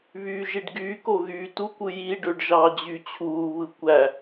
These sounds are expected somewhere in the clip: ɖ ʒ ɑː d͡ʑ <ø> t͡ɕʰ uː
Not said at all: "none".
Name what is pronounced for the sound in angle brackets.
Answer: y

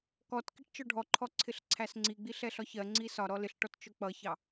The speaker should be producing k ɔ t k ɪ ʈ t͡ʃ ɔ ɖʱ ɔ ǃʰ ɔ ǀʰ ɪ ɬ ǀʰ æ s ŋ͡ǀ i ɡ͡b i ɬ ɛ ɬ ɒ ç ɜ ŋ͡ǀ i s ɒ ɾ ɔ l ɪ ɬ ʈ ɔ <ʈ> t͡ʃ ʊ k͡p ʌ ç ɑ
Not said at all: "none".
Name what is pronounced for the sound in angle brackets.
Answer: t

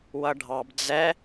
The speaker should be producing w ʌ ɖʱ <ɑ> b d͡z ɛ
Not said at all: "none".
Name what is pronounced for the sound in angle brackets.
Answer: ɑ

